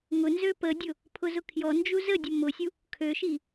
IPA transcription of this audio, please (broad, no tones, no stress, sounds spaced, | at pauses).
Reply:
ŋ ʊ n z ø p ə dʲ ʊ | pʰ ʊ z ʊ kʰ j ɔ n d͡ʒ u z ə dʲ ə m ʊ sʲ u | kʰ ø ʃ i